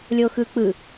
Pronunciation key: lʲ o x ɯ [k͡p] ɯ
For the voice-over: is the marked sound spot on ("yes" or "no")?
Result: yes